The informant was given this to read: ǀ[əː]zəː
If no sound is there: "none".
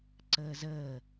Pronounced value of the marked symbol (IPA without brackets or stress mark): əː